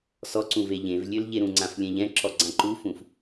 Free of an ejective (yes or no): yes